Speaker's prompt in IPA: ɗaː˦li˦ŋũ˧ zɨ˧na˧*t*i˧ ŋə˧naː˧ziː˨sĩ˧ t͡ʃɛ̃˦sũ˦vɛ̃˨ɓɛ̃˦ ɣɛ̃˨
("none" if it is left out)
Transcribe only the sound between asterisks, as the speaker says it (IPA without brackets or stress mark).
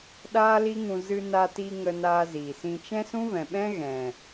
t